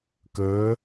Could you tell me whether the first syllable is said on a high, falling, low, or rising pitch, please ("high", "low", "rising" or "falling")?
rising